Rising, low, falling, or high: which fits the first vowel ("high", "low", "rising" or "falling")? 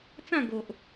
falling